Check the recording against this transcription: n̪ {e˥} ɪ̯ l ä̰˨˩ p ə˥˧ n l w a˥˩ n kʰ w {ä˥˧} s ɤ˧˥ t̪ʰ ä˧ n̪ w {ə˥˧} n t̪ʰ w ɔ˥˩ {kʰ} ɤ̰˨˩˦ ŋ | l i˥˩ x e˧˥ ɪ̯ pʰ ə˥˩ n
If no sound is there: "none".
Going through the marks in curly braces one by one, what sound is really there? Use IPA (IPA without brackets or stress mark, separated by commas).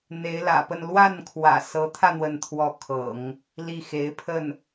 e˧˥, ä̰˨˩, ə˥˧, kʰ